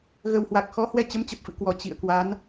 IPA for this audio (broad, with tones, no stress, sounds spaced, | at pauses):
ɣ ə˨˩ w h w a˨˩ k̚ x ɔ˨˦ h w ɛ˧ t͡ɕ ə˨˦ m t͡ɕ ə˨˩ p̚ f ɨ̰˧˨ k w ɔ˧˩ t͡ɕ ḭ˧˨ ə̯ k w a˨˦ n